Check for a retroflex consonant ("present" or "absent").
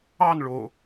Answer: present